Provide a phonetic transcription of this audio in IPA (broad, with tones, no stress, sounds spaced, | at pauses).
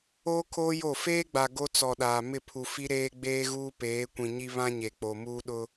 oː˦ kʰ oː˦ j o˦˨ f eː˦ ɡ͡b a˨ ɡ o˦ t͡s ɔ˨ ɗ aː˨ m ɪ˦˨ pʰ u˨ f i˦ ɾ eː˦ ɡ͡b eː˦ ɣ uː˦ p eː˨˦ kʷ ĩ˨ ɲ i˦ β ã˦ ɲ e˨ k͡p o˨ m uː˦ ɗ ʊ˦